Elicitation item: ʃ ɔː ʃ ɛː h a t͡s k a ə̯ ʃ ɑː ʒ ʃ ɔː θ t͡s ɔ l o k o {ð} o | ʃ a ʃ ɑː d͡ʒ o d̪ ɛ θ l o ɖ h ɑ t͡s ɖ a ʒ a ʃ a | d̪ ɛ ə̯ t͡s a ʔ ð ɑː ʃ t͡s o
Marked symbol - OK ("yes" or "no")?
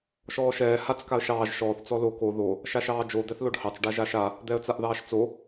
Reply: yes